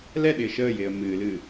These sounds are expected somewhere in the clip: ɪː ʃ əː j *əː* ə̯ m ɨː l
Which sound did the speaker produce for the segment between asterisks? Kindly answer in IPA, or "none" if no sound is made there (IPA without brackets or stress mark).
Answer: ɪː